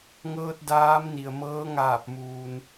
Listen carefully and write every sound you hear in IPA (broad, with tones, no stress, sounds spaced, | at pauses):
ŋ ɤː˧ t̚ d aː˧˥ m n i˩ ə̯ m ɤː˧˥ ŋ aː˧˩ p̚ m uː˩ n